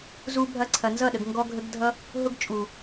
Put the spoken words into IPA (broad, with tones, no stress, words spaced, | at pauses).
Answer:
zu˧bʱɐ˧ ǀʰɐ˨nzʌ˦˨ɗə˨ɡ ŋɡɔ˦ɡʱə˦ɡdʱʌ˦ | ɦʊ˦ɡt͡ʃʼu˨